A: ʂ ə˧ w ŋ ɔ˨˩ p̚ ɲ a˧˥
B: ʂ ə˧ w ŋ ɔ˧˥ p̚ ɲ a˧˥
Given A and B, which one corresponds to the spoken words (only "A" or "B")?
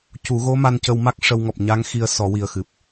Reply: A